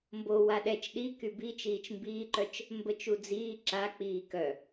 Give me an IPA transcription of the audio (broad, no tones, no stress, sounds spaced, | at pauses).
m b o w a ɗ ɛ t͡ʃ ɗ i k y b i t͡ʃ iː t͡ʃ m b iː ǃ œ t͡ʃ | m b ə t͡ʃ u d͡z iː ǁ a k͡p iː k œ